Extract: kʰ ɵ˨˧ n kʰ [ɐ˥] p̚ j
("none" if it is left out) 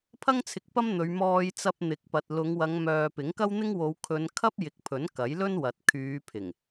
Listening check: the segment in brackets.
ɐ˥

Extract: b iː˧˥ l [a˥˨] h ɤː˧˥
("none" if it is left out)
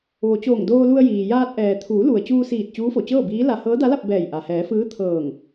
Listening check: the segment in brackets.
a˧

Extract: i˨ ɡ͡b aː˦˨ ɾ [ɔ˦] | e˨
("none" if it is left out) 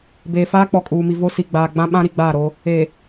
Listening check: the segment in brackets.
o˦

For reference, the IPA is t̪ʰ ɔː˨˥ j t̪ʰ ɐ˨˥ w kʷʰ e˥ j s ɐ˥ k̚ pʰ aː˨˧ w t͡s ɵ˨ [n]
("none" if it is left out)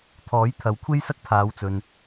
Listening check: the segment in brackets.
n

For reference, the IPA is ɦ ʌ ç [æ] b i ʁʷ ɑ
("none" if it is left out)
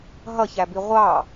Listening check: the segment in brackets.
æ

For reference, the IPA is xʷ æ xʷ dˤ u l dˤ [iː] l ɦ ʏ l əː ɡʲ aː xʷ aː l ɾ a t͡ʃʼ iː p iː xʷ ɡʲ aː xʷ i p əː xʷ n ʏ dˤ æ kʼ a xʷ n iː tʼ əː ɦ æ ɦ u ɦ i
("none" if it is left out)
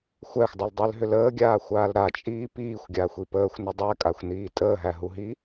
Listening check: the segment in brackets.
i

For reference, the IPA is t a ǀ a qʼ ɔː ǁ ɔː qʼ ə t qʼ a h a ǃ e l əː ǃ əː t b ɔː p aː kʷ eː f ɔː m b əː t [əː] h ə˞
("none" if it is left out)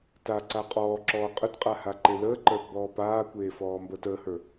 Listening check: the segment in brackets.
əː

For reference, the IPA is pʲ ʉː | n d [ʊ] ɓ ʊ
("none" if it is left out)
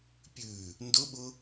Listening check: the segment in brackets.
ʊ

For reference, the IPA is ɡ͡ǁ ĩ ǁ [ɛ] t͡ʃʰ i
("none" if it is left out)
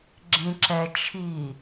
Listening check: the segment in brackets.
ɛ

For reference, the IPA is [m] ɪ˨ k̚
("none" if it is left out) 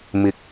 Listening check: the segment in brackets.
m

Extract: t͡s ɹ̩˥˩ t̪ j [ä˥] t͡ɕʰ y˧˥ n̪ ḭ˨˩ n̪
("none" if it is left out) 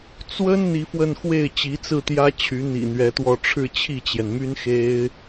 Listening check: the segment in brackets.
ä˥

